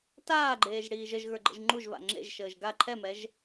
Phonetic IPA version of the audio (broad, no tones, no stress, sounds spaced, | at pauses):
t aː ɡ͡ǃ eː ʒ ɽ iː ʒ ə ʒ ɣ ə˞ ɡ͡ǃ ə̰ ʒ ŋ͡ǃ u ʒ v a̰ ŋ͡ǁ ḛ ʒ ʃ əː ʒ ɡ a ǃʰ ɛ m ɛ ʒ